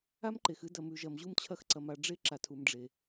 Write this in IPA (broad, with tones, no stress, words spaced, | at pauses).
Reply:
a˦mǃe˨x ɨ˦ dɐ˨mʉ˨ʒɐ˨m ʑu˦mt͡ɕʰɐ˦xǀɐ˨m a˨ɖ͡ʐe˦ ǁa˨tʰu˨m ɖ͡ʐe˨